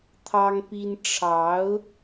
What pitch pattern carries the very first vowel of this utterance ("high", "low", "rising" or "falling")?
high